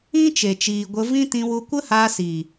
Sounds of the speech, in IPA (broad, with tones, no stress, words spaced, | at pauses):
ĩ˦t͡ʃe˨t͡ʃiː˨ ɡʷə˧vĩ˦ tĩ˧wu˧kʷə˦ haː˧siː˨